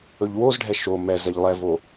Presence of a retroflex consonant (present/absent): present